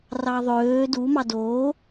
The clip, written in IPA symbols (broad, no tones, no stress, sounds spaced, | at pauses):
r ɑ ðˤ øː d u m ɑ d oː